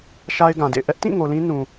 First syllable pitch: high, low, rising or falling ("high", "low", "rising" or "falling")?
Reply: high